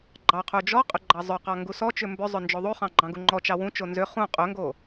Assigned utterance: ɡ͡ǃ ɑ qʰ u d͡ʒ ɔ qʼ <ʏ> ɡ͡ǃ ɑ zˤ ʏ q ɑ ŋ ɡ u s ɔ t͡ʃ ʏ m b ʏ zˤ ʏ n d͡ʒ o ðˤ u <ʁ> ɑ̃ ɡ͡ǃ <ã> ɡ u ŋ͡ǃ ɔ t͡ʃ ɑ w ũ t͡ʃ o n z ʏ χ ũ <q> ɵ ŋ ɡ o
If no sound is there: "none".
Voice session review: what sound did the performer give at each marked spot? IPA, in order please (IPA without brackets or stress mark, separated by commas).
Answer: ʏ, χ, ɑ̃, qʼ